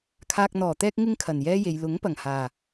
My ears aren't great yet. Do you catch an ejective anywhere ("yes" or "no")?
no